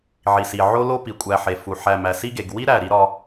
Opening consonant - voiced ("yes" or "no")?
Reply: yes